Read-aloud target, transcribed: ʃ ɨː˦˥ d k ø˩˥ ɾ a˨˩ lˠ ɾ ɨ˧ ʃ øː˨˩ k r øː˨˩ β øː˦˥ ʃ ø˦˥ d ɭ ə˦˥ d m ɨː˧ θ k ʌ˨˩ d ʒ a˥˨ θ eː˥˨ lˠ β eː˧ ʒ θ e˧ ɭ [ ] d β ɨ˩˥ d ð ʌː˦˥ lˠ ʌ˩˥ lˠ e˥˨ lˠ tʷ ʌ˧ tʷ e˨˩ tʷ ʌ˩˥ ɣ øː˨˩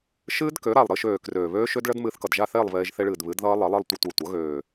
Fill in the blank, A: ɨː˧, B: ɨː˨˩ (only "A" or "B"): B